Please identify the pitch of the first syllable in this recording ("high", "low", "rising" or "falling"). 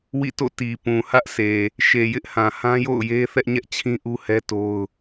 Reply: falling